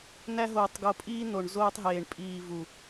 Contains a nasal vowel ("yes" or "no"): no